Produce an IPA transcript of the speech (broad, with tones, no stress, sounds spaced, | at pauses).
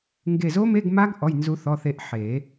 ŋ ɡ e˧˩ z o˦˥ m e˧˥˧ ɡ m a˦˥ ɡ ʔ ɔ˩˧˩ j n z u˨˩˦ θ ɔ˩˧˩ θ e˧˩ ʔ ħ e˨˩˦